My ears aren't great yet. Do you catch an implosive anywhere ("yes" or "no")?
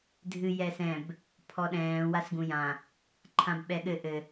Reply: yes